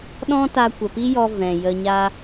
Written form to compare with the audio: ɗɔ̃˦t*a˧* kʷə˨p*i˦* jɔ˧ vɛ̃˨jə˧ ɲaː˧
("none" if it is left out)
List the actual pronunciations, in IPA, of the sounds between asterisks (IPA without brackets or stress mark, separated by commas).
a˧, i˦